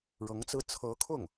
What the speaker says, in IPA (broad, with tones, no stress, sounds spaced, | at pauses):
ɻ ɤ˧˥ ŋ t͡s ɹ̩˥ t͡sʰ ɤ˧˥ kʰ ʊ˥˩ ŋ